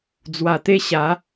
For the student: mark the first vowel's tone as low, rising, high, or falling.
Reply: low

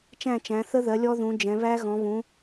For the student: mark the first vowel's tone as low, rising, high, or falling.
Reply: falling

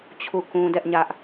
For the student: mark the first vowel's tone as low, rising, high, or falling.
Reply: falling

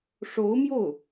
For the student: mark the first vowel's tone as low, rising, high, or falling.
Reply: rising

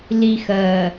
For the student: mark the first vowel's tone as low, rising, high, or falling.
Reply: low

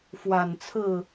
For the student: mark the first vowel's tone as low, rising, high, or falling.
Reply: low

